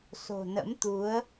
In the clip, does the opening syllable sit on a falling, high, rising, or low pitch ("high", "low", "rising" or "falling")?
low